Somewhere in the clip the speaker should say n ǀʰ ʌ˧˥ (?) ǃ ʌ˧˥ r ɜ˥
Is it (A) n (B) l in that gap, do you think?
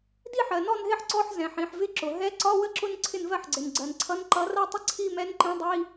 A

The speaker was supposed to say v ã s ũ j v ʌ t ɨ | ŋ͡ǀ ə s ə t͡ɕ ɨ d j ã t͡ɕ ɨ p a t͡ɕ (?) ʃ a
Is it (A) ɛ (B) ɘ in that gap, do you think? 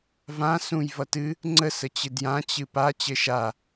B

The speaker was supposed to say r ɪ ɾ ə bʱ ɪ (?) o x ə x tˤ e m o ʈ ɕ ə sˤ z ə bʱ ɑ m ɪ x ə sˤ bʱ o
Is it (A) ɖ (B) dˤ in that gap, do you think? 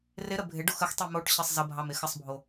A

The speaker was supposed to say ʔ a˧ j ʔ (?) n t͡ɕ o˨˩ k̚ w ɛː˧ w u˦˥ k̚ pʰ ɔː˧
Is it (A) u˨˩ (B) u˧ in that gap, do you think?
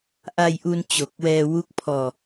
B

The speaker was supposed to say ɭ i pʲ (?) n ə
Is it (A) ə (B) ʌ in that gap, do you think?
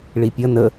B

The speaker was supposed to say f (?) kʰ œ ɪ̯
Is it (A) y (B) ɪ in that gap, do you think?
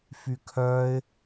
A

